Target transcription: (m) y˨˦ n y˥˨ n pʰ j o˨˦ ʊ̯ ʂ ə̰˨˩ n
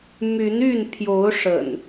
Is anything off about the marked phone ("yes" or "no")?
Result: no